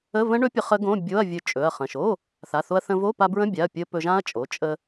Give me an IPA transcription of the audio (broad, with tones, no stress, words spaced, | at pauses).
ə˧˥˧və̃˦˥ɳɵ˦˥pʲə˧ χə˦˥ɡõ˧˥˧ bʲo˧˥˧ɐ̯vʲɵ˧ t͡ʃʼɵ˩˧˩ɐ̯χə̃˩˧˩ʃ o˧˥˧ | θa˩˧˩θo˧ɐ̯θə̃˧vo˧˥˧ pa˧bɹə̃˧˥˧bʲa˩˧˩ɐ̯ pʲə˧ pɵ˧ʒã˦˥ɐ̯t͡ʃʼo˩˧˩ t͡ʃʼə˧